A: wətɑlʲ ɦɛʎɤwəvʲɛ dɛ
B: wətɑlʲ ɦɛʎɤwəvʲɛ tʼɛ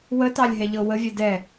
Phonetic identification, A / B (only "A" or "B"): A